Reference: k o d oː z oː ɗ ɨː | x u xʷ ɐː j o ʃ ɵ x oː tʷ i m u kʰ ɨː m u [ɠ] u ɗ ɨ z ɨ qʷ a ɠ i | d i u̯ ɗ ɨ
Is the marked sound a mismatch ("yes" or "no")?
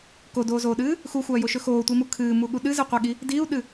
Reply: no